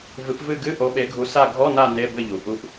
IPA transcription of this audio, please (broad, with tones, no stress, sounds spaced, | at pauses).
v ɨ˨˦ p v ɨ˦˨ ɡ ɨ˧˥˧ ʔ o˨˦ ɓ e˨˦ ɡʱ u˨˦ s a˦˨ ɡʱ ɔ˧˥˧ n a˦˨ n e˧˥˧ b ɘ˦˨ ʎ u˩ ʔ u˨˦ ʔ